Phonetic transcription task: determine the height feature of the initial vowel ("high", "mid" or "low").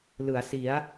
high